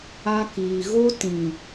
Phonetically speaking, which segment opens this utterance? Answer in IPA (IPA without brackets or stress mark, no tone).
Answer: a